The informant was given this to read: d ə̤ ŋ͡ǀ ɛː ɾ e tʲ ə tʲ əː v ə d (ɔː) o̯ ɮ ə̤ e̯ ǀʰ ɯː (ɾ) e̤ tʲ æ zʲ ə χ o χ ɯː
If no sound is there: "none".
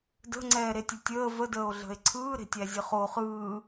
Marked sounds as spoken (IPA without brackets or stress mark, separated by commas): əː, ɾ